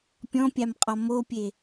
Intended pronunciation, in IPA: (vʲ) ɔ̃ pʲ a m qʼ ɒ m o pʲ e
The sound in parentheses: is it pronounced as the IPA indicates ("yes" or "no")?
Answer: no